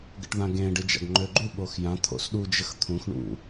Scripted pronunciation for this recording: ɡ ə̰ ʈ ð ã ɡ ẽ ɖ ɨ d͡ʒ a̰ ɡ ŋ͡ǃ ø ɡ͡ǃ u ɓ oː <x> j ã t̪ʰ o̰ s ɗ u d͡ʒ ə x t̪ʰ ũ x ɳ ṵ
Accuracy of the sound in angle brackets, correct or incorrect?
correct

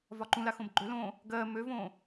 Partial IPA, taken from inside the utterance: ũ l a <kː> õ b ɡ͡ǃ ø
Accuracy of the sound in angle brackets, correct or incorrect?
incorrect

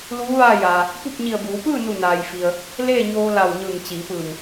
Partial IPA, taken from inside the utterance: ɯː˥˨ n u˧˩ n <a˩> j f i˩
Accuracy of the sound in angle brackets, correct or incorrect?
incorrect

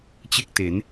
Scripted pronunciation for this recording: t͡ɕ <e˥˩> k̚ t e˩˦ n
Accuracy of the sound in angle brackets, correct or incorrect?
correct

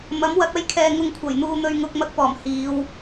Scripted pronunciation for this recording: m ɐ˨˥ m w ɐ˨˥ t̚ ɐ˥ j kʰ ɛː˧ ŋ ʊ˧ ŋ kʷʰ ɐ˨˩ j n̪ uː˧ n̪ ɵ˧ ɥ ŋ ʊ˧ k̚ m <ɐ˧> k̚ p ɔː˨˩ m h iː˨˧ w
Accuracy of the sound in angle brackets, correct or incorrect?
correct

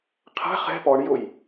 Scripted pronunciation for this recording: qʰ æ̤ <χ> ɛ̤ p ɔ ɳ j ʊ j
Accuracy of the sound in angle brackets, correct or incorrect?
correct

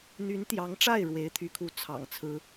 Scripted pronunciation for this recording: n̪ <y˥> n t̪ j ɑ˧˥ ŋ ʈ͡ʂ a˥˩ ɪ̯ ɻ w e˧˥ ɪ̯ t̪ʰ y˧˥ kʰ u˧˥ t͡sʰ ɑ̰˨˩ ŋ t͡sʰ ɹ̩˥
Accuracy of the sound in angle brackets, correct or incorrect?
incorrect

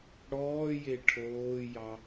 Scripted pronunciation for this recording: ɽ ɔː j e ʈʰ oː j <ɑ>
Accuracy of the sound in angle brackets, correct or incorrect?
correct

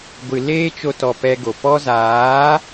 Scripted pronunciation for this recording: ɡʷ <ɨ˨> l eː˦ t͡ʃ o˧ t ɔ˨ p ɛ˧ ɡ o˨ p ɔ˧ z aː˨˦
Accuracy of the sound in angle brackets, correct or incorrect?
correct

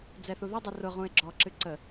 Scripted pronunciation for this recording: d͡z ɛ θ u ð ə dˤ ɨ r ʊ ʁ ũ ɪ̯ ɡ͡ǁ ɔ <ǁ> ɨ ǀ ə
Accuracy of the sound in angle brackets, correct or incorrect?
correct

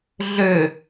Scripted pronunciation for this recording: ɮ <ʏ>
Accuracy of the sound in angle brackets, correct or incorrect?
correct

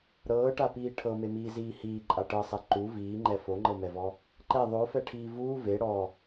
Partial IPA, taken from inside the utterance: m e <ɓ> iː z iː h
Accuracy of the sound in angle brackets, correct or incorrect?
incorrect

